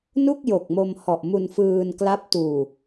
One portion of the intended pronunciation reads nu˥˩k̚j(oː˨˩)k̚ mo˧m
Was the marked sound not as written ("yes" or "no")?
yes